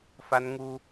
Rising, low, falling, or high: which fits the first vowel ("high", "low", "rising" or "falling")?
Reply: high